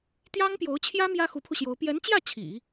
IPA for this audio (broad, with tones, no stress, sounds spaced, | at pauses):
t̪ j ɑ˥ ŋ p j o˧˥ ʊ̯ t͡ɕʰ j ä˥ m j ä˥ x u˧˥ pʰ u˧ ɕ j o˧˥ ʊ̯ p j ɛ˧˥ n t͡ɕ j ä˥˩ t͡ɕʰ ḭ˨˩˦